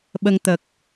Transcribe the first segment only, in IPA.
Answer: ɓ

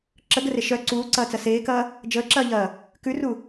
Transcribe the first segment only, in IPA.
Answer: ǁ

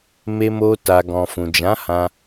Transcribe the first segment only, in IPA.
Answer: m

